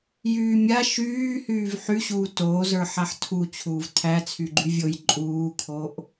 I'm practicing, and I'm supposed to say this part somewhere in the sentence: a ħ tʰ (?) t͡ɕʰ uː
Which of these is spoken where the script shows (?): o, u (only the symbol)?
u